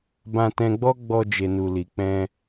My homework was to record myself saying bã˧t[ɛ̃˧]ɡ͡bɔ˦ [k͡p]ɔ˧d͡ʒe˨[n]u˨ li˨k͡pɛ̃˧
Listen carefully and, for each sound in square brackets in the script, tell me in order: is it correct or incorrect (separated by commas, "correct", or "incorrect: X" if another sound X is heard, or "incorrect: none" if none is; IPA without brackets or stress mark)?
correct, incorrect: ɡ͡b, correct